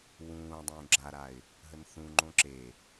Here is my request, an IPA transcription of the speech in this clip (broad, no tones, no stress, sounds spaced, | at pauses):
w ũː dˤ ũː ɡ͡ǁ a ɾ a ɪ̯ | ɦ ə n θ ũ ŋ͡ǃ õ ǁ e